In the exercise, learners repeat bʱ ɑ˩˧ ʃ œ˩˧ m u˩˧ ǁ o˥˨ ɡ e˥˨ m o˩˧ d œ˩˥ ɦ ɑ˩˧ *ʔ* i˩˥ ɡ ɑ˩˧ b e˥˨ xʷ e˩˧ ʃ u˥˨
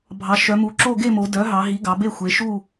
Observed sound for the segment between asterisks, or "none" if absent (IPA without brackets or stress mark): ɦ